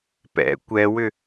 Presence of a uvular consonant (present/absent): absent